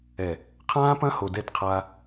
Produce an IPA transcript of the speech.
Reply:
ɛ˨ | qʰãː˦pɐ̃˦ ho˨dɛ˦˨tqʰa˦

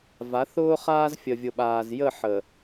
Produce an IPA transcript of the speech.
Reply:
va˨˦θʊː˦χaː˦z fʲə˨vʲʊ˨ɓaː˨z jə˦˨ ħə˨

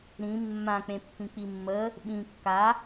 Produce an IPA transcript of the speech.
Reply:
ɾĩ mːãk͡pẽpːĩ k͡pimːə | ɓĩ kːa

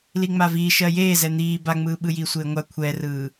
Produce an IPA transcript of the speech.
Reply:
liŋ͡maviː ʃɜjeː zɛn̪iː baŋ͡mɯːɓɯ jiːsʷeːŋʷa kʷʰɛrɯː

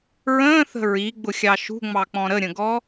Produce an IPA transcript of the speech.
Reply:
ɹə̃ːθə̤ ɹiɡ͡bʊxʲɑ ʃṳŋ͡mɑk͡pɔ̃ ɾəɾʲə̃ɡɔ

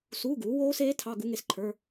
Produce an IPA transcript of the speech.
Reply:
suː˧˥˧ɡuː˩˥ woː˦˥seː˦˥ tʰɑ˧˥˧ ɡu˦˥ŋe˧sǃʰə˞˧˥˧

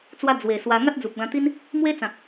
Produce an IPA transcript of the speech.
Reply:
t͡swa˧ d͡zwe˨˩swa˧ ŋa˦t̚d͡zu˨p̚ɡã˧t̪i˦n | mwe˦t͡sã˨k̚

